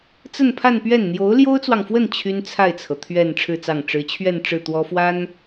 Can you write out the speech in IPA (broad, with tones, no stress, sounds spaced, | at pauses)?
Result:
t͡s ə˥˧ n pʰ a˥˧ n p ɥ ɛ˥˩ n n̪ j o˧˥ ʊ̯ l j o˥ ʊ̯ t͡s w ɑ˨ ŋ f w ə˥˩ n t͡ɕʰ y˥ n t͡sʰ a˥˩ ɪ̯ t͡sʰ ɤ˩ t̪ʰ ɥ ɛ˥˧ n ʈ͡ʂʰ ɻ̩˥˧ t͡s ɑ˥˩ ŋ ʈ͡ʂ ɻ̩˧˥ t͡ɕʰ ɥ ɛ˥˧ n ʈ͡ʂ ɻ̩˥˩ t̪ w ɔ˥ f w a˥ n